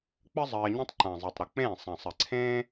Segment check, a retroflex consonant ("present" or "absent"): absent